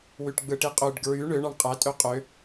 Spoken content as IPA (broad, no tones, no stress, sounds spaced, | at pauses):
w y ʈ ɡ͡b ɯ ʈ i qʼ ø ɖ ɡ ɹ y ɳ ø ɳ ɑ ɳ qʼ æ tʼ ø qʼ ø